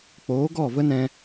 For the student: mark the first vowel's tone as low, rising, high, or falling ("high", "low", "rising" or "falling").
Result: rising